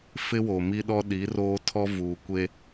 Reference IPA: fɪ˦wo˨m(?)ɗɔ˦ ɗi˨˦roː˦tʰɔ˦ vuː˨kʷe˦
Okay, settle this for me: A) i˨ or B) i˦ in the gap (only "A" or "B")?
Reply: B